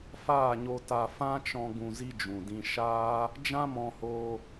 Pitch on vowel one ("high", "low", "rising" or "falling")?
falling